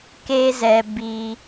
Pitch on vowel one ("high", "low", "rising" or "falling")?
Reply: high